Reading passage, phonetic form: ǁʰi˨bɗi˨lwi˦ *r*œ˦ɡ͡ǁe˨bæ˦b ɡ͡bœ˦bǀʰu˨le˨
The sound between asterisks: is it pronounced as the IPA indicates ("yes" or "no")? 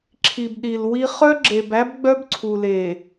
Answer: no